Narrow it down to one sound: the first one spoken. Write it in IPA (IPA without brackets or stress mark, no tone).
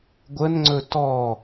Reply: ɡʷ